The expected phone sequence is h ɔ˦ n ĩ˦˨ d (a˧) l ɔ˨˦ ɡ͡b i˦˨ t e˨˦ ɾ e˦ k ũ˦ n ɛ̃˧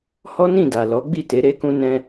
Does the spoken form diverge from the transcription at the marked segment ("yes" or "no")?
yes